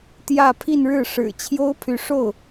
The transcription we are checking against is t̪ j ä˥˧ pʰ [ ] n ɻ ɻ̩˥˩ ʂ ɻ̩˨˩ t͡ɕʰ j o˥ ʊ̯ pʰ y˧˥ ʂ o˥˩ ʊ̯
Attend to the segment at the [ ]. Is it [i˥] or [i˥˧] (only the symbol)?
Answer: i˥˧